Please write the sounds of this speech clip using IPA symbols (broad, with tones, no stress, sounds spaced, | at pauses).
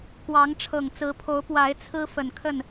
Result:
k w ɑ˨˦ ŋ ʈ͡ʂʰ ɤ˨˩ ŋ t͡s ɹ̩˨˦ pʰ o˨˦ ʊ̯ p w a˨˦ ɪ̯ t͡sʰ ɹ̩˦ f ə˨˩ n kʰ ə˥˨ n